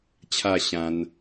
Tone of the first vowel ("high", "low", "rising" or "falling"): falling